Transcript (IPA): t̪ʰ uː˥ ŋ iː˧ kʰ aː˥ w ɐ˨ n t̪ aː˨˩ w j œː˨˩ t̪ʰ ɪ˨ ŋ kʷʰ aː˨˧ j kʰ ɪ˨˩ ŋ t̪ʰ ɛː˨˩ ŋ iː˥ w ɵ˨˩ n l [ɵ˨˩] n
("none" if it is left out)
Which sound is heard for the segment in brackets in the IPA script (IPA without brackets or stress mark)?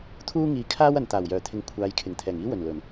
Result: ɵ˨˩